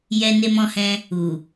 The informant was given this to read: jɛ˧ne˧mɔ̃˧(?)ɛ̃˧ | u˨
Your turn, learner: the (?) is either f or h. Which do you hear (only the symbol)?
h